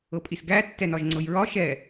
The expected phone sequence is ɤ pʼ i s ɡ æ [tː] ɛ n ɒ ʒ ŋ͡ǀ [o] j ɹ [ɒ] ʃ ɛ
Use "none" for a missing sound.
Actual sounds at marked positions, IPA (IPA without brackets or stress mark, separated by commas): tː, ɤ, ɒ